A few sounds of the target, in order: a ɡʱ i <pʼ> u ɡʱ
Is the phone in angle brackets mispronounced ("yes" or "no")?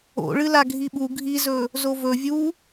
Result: yes